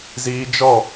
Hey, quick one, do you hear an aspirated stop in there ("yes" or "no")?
no